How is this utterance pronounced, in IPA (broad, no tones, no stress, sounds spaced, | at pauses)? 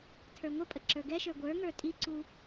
tʰ ə˞ ŋʷ ə pʼ ə ǁ ə˞ ɡ ɛ ʃ ə˞ ɡʷ ə˞ ŋ ə˞ tʼ i ǀ u